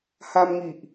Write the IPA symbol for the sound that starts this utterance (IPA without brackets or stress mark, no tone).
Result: h